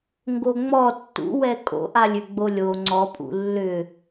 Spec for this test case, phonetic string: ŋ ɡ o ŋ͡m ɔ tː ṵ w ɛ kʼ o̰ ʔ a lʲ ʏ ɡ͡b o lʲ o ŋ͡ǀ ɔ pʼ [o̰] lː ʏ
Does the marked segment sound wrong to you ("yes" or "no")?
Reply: yes